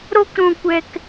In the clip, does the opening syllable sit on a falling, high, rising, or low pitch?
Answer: high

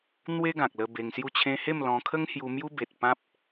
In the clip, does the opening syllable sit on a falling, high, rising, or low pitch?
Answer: high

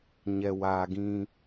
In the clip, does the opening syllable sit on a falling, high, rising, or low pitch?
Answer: low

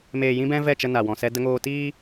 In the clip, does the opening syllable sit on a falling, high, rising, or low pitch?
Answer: low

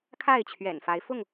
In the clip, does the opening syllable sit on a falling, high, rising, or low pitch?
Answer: falling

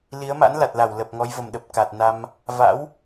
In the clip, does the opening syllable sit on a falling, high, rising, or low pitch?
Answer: rising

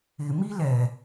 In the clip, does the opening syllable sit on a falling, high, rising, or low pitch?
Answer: low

